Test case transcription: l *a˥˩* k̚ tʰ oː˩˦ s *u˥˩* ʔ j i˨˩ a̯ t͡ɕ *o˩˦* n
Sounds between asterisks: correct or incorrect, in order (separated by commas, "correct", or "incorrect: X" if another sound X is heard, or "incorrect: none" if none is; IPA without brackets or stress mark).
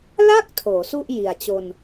correct, correct, incorrect: o˧